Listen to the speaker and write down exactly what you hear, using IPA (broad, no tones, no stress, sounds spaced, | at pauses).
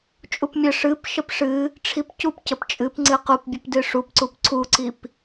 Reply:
t͡ʃʼ u p mʲ ə ʂ ɨ p ʃ ə p ʂ ɨ | ʈ͡ʂʰ i p c u p c ə p t͡ʃʼ ɨ p ŋ͡ǀ ɨ q u p bʲ ə p d ɨ ʂ u p ǀ u p ǀʰ u ǀ i p